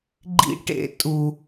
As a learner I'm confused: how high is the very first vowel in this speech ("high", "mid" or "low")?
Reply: high